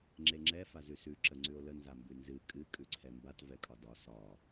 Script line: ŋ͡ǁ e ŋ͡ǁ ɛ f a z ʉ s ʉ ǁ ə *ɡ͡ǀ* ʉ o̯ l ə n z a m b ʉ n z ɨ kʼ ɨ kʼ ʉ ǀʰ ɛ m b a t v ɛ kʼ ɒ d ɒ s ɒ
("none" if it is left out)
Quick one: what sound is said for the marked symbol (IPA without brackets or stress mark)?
ŋ͡ǀ